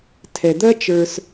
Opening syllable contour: low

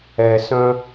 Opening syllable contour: low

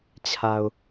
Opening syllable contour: low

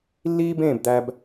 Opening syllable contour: high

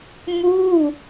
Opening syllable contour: falling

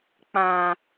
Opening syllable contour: low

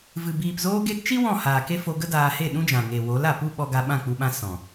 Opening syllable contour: low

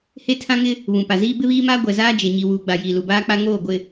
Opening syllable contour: high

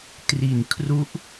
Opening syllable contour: low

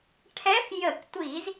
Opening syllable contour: rising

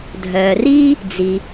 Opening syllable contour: low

